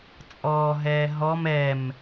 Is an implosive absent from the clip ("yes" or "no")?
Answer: yes